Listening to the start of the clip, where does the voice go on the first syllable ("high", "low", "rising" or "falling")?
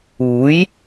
rising